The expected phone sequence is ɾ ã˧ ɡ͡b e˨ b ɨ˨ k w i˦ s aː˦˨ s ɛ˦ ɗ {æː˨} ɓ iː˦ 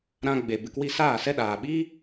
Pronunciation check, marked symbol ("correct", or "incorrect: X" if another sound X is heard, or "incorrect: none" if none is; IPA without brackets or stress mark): incorrect: aː˨